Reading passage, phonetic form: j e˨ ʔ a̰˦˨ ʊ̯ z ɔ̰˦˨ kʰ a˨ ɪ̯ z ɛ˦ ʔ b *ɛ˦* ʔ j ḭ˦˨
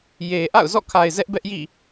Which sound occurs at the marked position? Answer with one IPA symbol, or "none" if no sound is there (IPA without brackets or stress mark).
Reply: ɛ˦